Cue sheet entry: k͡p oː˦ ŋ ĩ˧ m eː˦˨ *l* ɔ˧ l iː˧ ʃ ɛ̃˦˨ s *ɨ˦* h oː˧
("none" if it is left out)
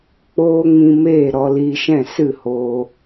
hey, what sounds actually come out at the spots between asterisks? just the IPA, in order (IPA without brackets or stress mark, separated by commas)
ɾ, ɨ˦˨